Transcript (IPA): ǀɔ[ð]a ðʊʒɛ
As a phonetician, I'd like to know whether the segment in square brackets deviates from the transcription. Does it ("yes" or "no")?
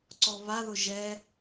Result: yes